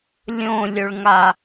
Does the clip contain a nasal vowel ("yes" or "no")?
yes